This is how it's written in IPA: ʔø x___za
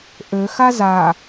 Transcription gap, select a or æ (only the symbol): a